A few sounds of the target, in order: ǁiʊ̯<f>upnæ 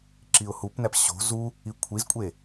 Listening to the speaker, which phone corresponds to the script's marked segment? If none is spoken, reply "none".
h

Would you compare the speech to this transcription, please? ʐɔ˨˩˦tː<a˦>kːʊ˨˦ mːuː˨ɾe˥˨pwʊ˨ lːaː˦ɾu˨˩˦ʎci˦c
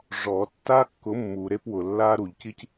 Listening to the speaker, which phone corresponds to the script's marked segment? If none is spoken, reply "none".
a˦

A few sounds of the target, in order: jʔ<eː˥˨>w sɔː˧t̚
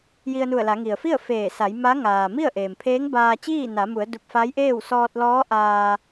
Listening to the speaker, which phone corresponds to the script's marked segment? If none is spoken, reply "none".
eː˥˨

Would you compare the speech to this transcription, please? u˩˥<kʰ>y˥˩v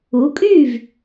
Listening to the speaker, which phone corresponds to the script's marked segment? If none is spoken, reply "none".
kʼ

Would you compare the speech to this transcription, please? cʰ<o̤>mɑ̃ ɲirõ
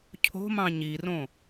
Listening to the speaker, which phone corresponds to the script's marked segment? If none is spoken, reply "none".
o̤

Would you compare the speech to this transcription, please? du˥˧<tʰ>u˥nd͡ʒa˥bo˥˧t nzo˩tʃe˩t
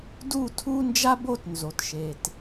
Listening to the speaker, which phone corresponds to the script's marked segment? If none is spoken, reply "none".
tʰ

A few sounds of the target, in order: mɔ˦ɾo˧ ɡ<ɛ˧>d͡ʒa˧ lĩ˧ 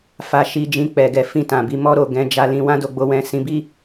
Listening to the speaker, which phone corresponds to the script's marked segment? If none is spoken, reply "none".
ɛ̃˧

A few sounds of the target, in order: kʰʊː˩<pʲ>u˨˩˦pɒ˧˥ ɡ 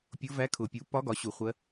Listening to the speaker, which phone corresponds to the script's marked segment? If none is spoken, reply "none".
pʲ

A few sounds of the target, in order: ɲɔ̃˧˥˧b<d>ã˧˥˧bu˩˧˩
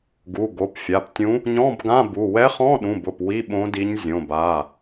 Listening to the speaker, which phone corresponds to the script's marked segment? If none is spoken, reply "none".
ɡ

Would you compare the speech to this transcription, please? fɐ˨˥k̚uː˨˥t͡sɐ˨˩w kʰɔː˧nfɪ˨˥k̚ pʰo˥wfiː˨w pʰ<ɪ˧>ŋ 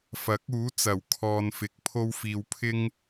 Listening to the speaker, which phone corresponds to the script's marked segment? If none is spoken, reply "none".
ɪ˥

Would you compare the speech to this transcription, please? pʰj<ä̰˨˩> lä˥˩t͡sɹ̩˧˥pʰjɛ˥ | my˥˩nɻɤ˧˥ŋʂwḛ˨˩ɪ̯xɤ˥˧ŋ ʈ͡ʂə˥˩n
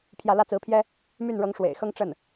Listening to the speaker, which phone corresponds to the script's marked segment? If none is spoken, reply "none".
ä˥˧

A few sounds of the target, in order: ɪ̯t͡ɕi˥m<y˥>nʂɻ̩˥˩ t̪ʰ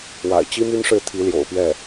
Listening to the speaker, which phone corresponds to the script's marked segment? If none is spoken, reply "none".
y˥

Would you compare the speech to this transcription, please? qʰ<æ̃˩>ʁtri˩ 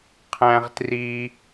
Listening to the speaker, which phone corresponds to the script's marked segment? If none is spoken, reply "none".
æ̃˩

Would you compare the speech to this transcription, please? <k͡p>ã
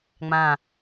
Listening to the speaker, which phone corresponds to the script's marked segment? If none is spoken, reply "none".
ŋ͡m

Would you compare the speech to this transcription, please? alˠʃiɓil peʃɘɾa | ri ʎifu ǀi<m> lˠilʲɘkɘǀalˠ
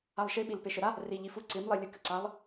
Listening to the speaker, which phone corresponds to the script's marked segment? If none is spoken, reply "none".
m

